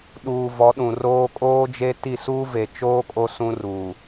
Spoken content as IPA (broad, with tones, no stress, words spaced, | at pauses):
ɗuː˨vɔ˨˦ɗũ˨roː˦ kʼoː˦d͡ʒe˦ti˦˨ suː˦ve˨t͡ʃoː˦ kʼo˦sũ˦ruː˨